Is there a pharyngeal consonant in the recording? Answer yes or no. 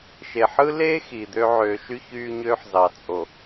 yes